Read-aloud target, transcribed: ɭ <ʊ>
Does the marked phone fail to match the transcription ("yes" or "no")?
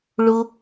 no